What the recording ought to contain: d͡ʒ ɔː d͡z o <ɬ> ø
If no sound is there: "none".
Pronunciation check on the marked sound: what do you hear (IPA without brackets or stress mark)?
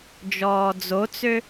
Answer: t͡s